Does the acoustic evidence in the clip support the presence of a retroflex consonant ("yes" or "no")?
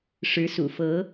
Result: yes